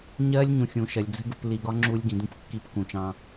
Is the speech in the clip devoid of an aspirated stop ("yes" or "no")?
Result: yes